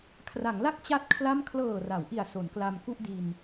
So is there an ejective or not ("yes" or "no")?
no